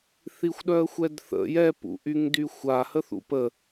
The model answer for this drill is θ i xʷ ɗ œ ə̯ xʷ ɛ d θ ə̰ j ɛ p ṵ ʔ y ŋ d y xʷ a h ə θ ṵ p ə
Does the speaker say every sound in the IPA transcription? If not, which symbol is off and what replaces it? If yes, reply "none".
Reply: none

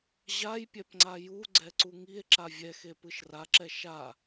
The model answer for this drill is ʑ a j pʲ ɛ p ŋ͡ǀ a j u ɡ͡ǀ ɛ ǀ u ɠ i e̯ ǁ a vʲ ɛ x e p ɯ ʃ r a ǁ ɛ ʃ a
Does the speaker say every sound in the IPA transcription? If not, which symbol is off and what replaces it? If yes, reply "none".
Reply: ɠ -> ŋ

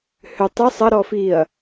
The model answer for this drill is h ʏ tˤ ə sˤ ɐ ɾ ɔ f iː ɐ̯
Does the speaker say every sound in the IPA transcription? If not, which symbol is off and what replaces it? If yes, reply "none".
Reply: none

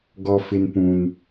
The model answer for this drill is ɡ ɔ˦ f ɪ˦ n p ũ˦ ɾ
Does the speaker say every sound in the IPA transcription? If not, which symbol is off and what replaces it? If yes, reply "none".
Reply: ɾ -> n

